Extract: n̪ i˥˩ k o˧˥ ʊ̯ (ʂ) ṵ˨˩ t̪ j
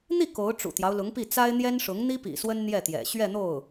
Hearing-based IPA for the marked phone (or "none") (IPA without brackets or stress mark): ʈ͡ʂ